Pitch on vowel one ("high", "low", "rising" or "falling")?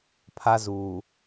high